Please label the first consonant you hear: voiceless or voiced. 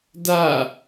voiced